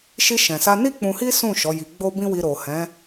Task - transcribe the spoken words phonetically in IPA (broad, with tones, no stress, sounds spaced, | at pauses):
ʃ i˧ ʃ ɛ̃˨ s a˧ n i˦ k͡p ũ˧ h i˦ s ũ˦˨ ʃ ɔ˨˦ j i˧ ɡ͡b o˦ b ĩ˦ w i˧ ɾ o˨ h ɛ̃˨˦